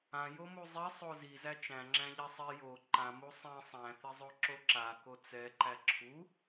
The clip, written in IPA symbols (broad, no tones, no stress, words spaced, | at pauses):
ãjomu zˤisˤo zizæ t͡ʃæ̃ŋ͡ǁæ̃ʎɛ sˤi jo ǃãmu sˤẽ sˤæ̃θizˤoǁo ǁako t͡sɛǃæ ǁʰu